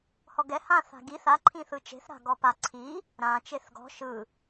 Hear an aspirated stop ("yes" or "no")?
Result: yes